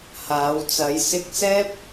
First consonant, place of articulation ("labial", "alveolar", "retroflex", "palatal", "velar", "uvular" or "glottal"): glottal